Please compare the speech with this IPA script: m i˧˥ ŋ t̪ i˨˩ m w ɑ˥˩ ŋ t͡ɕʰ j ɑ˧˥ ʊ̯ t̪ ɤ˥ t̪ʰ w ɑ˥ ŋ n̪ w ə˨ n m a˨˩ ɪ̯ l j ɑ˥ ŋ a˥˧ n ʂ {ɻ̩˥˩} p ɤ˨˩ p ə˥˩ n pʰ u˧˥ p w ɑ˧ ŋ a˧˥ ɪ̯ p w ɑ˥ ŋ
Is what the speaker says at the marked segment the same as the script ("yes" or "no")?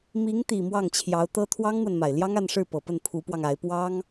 yes